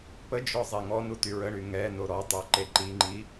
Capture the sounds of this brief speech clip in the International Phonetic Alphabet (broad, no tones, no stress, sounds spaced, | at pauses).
p ə d͡ʒ ɔ zˤ e ŋ ɔ n u t y ɹ ə ɳ y ŋ ɛ n o ɾ ɔ tˤ œ ǃ e ǃ i ŋ͡ǃ i